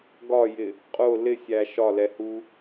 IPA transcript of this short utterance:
ɡ ɒ j ɪ | qʼ ʊ l ɪ sʲ æ ʃ ɒ l ɛ h u

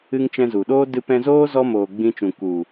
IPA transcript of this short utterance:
ɨ˧ ŋ t͡ʃ ɛ̃˧ z u˨ ɗ oː˦ d ɨ˧ p ɛ̃˧ z oː˦ z ɔ˦ m oː˨ ɡ͡b ĩ˧ t͡ʃ ũ˨ k u˨

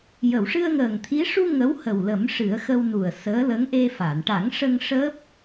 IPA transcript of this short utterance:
j ə˨˩˨ w ʂ ɨ˧ ə̯ ŋ əː˨˩ ŋ t̪ʰ i˧˥ ʂ u˧ ŋ ə˧˥ w h ə˨˩ w l ə˨˩˦ m ʂ ɨ˨˩˦ ə̯ x ə˧ w n u˨˩ ə̯ s əː˧˥ l ə˧˥ ŋ ʔ e˧ f a˨˩˨ n ʈ a˨˩˦ ŋ ʂ ə˧ ŋ ʂ əː˦˥ p̚

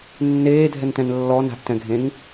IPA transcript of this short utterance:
nː eː dʱ ɛ n t ɛ̃ n lː ɔ n a̤ ʔ t ɛ̃ ɡʱ ẽ ŋ

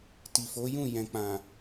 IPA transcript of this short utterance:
t i˨ f o˨˦ j ũ˦˨ j ɛ̃˨ k͡p ã˨

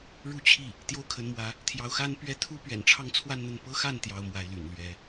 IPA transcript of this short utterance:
ɻ u˥˧ t͡ɕʰ i˥˩ | t̪ j o˥ ʊ̯ kʰ ə˧˥ n m w ä˧˥ | t̪ʰ j ɑ˧˥ ʊ̯ x a˥ n p ɥ ɛ˥˩ t̪ʰ u˥ p ɥ ɛ̰˨˩ n ʈ͡ʂʰ ɑ˥˧ ŋ t͡sʰ w a˥˧ n n̪ ə˥˩ n p ɤ˥ x a˥˩ n t̪ j ɑ˥ ʊ̯ m w a˧˥ ɪ̯ l y̰˨˩ n l ɥ ɛ˧˥

